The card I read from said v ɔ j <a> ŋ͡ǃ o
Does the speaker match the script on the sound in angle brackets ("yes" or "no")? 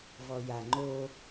yes